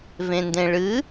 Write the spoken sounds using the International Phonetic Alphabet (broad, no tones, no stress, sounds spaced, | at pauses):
v ẽ n d ẽ ɭ ɨ